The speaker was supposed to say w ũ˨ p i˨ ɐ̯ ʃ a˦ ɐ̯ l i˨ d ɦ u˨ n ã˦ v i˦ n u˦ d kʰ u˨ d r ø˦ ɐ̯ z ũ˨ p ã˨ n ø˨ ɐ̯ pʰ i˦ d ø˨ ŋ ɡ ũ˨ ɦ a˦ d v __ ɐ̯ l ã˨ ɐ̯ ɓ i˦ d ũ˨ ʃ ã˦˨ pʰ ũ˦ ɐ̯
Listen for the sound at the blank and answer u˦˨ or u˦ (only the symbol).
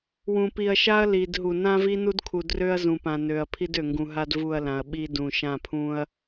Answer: u˦˨